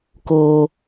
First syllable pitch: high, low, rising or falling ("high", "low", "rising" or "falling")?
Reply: high